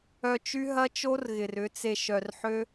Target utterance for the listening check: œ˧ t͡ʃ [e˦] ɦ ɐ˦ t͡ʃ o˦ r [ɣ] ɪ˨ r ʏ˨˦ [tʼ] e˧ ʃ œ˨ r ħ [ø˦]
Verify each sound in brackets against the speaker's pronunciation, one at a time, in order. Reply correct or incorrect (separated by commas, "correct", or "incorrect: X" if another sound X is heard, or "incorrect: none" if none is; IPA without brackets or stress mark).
incorrect: y˦, correct, incorrect: t͡s, correct